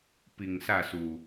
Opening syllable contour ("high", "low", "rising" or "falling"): low